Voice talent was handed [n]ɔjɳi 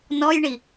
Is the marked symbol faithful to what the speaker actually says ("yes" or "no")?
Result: yes